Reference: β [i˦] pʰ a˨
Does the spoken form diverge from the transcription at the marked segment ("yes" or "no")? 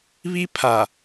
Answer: no